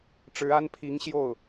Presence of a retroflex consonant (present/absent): present